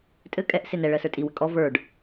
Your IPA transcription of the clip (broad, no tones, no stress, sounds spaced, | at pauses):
tʼ ɘ kʼ ɛ ʔ s e n ɛ ɭ ɜ s ə˞ tʼ i w ɘ kʼ ɔ v ə˞ ɖ